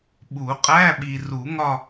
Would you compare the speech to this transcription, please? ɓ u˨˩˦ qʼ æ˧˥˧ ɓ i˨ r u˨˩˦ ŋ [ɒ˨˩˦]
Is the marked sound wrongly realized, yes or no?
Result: yes